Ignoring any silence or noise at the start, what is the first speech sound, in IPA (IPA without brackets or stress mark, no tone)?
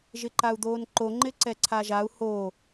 ʒ